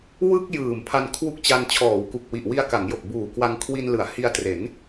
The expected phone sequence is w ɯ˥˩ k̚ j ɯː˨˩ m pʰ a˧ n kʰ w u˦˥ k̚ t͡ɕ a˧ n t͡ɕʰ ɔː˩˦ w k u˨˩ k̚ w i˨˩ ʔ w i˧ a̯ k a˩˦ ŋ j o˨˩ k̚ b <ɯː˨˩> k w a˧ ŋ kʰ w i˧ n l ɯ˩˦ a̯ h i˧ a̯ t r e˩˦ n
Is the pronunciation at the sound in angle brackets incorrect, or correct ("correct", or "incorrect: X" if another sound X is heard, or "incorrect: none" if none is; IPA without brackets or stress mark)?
incorrect: uː˨˩